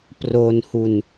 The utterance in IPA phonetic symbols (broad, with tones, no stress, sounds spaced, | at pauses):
p r o˧ n h u˧ n